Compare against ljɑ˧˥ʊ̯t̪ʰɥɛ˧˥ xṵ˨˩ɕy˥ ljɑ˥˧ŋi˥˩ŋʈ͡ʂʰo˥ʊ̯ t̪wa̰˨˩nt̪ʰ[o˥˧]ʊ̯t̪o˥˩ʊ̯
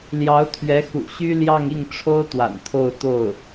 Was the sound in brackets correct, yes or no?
yes